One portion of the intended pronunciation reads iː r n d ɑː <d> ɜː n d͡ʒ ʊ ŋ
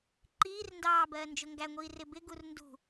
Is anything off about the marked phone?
yes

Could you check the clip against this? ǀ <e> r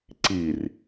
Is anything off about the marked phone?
yes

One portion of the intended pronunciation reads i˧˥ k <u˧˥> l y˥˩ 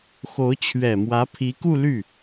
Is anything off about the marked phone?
yes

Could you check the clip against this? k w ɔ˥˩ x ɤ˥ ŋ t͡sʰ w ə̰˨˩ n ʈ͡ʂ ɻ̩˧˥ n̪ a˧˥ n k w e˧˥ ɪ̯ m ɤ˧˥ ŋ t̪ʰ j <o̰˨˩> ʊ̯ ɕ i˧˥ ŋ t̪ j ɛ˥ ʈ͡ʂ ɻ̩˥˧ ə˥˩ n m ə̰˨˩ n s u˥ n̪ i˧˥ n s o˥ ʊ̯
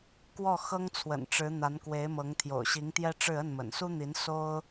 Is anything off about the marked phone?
no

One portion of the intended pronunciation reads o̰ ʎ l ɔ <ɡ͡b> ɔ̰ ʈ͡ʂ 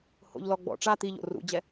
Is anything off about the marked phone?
no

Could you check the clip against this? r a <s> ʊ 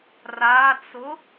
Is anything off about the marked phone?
yes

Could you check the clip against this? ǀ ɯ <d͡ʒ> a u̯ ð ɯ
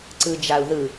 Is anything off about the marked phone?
no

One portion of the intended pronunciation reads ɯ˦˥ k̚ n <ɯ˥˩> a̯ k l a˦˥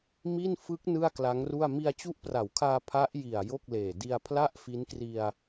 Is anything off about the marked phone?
no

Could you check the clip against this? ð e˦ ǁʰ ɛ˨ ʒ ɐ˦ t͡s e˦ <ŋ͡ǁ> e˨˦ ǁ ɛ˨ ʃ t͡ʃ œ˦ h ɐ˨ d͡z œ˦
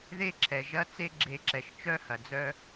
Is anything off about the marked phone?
yes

